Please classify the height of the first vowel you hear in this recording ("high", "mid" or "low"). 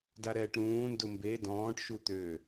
low